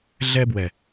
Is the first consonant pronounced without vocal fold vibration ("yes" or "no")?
no